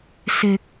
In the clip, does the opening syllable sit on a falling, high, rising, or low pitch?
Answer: low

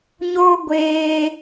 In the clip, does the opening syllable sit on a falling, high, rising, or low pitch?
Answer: high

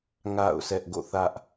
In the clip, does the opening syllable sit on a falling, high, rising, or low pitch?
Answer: falling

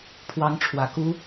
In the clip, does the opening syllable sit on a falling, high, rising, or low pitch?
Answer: rising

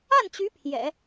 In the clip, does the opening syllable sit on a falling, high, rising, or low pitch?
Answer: falling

